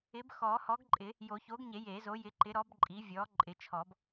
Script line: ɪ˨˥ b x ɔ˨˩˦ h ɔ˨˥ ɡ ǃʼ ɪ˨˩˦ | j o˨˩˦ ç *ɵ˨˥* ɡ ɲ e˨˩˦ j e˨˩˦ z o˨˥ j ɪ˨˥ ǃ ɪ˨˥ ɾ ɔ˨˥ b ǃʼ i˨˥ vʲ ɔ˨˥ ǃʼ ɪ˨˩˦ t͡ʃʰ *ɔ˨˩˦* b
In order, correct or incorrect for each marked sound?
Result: incorrect: o˨˥, correct

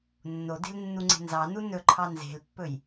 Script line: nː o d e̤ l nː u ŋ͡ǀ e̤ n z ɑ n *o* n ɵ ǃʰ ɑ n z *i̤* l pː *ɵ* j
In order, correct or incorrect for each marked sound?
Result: incorrect: u, incorrect: e̤, correct

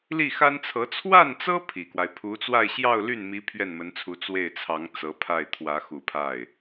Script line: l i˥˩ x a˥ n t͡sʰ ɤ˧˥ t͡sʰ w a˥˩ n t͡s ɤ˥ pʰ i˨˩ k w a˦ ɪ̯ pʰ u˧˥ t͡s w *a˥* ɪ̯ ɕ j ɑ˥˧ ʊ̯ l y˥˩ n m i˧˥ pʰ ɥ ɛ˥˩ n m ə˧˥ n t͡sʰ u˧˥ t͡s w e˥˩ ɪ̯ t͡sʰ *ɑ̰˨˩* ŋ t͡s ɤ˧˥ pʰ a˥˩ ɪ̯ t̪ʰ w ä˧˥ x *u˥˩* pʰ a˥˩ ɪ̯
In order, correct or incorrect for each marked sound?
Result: incorrect: a˥˧, incorrect: ɑ˧˥, incorrect: u˨˩

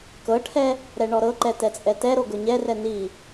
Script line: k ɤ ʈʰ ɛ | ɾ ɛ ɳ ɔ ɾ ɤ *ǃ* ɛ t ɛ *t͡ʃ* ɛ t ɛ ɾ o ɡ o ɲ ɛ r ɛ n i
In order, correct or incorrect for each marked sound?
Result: correct, incorrect: t͡sʼ

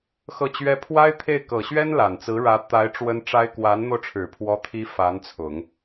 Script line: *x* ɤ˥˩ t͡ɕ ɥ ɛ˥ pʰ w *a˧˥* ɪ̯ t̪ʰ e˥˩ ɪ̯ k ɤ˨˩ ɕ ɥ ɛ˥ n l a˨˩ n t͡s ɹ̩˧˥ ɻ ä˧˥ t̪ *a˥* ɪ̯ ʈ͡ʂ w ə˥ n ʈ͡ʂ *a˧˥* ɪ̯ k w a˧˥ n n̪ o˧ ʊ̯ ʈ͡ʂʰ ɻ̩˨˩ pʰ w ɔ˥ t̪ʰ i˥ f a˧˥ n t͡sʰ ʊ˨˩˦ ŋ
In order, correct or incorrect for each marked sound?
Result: correct, incorrect: a˥, incorrect: a˧˥, incorrect: a˥

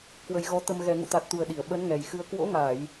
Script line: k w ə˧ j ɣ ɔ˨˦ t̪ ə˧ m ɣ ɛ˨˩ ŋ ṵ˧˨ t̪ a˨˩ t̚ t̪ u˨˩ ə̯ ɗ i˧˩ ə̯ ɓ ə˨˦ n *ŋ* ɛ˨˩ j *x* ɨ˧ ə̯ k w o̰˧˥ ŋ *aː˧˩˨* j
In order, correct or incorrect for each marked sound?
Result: correct, correct, correct

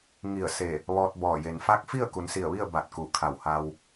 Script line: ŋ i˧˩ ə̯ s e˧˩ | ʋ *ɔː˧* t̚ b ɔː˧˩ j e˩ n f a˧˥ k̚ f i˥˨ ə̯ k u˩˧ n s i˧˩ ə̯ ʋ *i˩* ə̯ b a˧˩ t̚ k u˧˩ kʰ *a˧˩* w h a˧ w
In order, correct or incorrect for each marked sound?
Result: correct, incorrect: i˥˨, correct

